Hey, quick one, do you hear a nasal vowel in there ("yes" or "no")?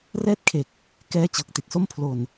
no